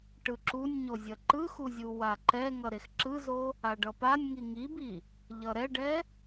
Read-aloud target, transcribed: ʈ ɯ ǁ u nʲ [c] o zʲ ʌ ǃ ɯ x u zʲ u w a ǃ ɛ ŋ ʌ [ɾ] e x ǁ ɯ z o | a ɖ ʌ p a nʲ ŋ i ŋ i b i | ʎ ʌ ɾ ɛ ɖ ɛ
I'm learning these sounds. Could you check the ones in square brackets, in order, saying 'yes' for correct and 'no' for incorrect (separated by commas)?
no, yes